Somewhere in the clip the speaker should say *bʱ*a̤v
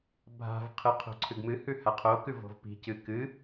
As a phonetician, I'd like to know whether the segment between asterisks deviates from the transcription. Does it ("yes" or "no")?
no